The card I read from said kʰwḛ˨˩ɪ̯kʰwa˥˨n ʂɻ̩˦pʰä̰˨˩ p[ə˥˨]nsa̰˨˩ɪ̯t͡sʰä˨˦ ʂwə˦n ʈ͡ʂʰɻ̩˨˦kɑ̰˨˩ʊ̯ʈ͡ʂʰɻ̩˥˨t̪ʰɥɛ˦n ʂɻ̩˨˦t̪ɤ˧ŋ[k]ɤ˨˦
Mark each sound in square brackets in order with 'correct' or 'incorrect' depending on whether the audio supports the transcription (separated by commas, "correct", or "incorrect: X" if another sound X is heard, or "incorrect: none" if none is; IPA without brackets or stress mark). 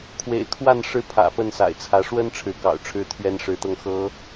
correct, incorrect: x